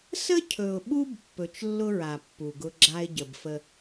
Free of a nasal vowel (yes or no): yes